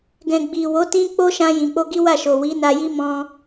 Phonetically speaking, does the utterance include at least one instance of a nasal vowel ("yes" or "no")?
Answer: yes